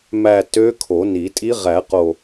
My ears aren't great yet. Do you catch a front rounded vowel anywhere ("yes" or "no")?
yes